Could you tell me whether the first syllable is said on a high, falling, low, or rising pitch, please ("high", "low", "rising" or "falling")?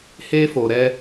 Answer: high